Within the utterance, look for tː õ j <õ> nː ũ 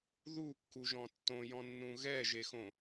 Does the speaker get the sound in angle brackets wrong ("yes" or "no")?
yes